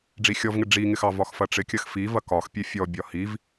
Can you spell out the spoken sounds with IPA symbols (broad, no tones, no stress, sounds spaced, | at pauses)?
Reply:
ɖ͡ʐ i xʲ ɔ v ŋ ɪ ɖ͡ʐ i ŋ ɪ x ɑ v ɒ x f ɐ ʈ͡ʂ ɪ kʲ ɐ x f i v ɐ k ɒ x pʲ e fʲ ɔ bʲ ɒ h i v